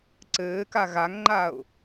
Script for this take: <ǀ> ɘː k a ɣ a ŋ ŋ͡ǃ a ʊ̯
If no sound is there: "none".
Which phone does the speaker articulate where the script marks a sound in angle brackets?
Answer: ǀ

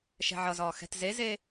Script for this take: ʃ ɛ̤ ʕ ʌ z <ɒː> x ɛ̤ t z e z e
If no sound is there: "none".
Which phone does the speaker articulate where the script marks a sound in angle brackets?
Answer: ɒː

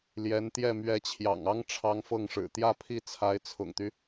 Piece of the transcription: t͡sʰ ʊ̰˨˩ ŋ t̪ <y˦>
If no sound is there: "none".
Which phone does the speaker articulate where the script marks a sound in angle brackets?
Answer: y˦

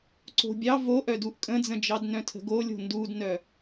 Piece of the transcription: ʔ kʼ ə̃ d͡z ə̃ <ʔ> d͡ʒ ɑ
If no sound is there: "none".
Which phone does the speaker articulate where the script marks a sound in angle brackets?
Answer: none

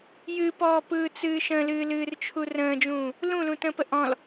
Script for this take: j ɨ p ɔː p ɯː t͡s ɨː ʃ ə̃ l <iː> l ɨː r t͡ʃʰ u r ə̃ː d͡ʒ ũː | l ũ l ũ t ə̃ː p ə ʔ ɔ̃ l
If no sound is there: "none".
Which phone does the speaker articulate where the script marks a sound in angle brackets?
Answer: ɨː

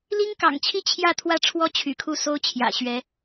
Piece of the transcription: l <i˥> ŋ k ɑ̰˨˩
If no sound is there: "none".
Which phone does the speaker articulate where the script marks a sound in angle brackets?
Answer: i˥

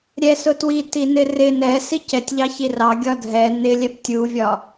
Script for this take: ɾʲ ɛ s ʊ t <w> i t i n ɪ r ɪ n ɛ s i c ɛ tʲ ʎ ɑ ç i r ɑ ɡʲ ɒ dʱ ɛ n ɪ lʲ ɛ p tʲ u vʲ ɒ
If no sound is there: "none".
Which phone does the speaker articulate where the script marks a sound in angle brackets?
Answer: w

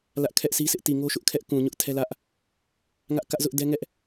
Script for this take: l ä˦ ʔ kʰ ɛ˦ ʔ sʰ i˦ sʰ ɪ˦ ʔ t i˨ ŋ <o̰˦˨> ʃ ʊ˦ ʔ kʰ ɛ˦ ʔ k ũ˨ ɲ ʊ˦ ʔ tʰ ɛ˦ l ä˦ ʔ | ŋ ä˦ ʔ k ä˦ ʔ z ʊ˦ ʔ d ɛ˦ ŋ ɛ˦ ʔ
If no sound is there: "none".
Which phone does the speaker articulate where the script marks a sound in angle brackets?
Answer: o˦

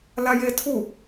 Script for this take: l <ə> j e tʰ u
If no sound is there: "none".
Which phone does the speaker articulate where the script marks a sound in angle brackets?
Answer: a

